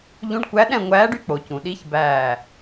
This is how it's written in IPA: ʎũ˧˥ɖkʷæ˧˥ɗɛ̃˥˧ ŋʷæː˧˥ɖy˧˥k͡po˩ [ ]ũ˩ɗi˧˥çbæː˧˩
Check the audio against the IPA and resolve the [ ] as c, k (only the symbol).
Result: c